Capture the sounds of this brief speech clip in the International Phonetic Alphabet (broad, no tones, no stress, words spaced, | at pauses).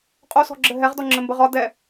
qʼosɔ̤ɡ͡ǁɘ ɦɛʁdɔŋ͡ǁɘmbə ʁɒ dɛ